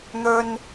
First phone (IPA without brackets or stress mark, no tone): n̪